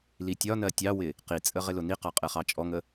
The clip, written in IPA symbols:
l i tʲ ɒ n ɜ tʲ ɑ w ɪ | q i t͡sʼ ə ʁ ɪ l ʊ n i q ɑ qʼ ɛ χ ɑ t͡ʃʼ ɔ ŋ ə

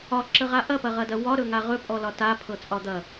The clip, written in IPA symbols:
ɒ ǁ ə ʁ a ʔ ɐ p ɐ ʁ ɐ d ɐ w ɒ ɾ ɵ ŋ a ʁ ɵ pʼ ɔ l ɒ t a pʰ ɤ t͡sʼ ɒ d̪ ɐ

